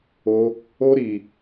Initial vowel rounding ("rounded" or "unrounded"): rounded